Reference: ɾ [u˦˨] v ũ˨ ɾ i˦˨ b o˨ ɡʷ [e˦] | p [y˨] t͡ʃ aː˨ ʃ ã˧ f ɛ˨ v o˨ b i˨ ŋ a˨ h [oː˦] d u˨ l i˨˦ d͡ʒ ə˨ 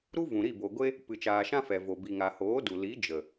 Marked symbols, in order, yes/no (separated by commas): no, yes, no, no